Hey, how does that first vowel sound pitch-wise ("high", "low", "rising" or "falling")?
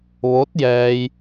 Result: rising